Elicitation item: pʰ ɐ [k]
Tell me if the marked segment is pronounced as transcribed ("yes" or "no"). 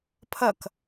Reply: yes